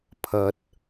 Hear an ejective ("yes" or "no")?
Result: no